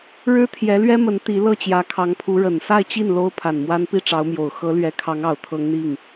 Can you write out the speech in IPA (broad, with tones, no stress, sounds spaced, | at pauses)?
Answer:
ɻ ɻ̩˥ t̪ʰ j ɛ˧˥ l ɥ ɛ˥ m ə˧˥ n t̪ i˧˥ l ɤ˥˩ t͡ɕ j ä˧˥ kʰ ɑ˧˥ ŋ pʰ u˧˥ ɻ ə˨˩ n s a˥˧ ɪ̯ t͡ɕ i˥˩ n l o˥ ʊ̯ pʰ a˨˩ n m w a˥ n p i˥˩ ʈ͡ʂ ɑ˧˥ ʊ̯ m j o˨˩ ʊ̯ x ɤ˧˥ l ɥ ɛ˧˥ kʰ ɑ˧˥ ŋ ɑ˨˩ ʊ̯ t̪ʰ ɤ˧˥ ŋ n̪ i˥˩ ŋ